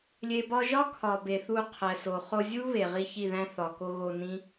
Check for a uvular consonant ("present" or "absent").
present